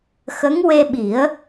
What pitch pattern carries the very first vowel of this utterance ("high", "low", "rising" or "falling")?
rising